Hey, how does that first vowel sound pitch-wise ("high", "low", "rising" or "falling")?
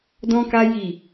high